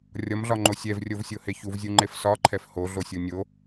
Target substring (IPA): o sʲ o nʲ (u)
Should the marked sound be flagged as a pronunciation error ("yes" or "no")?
yes